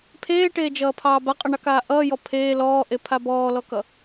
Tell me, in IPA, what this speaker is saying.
pʰ eː ʈ eː d͡ʒ ʌː pʰ ɑː b a qʼ ʌ ɳ ɑ k aː ʔ ʌː j ɔ pʰ eː l ɔː ʔ e pʰ a b ɔː l ɔ k ʌ

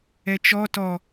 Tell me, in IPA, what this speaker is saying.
ɛ t͡ʃ ɔ t ɔ

